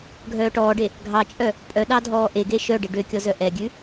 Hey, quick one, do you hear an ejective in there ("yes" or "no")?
yes